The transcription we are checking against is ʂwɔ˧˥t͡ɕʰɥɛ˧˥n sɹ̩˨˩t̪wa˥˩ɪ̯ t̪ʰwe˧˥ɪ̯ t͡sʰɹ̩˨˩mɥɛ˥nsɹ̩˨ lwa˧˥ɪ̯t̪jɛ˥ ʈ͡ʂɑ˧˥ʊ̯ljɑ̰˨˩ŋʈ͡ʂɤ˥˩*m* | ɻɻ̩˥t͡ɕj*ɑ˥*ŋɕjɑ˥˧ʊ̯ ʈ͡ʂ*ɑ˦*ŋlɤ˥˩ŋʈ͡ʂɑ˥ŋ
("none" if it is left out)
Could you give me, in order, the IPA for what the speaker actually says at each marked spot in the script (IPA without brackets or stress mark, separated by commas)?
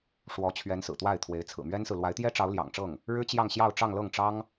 ŋ, ɑ˥˧, ɑ˥˧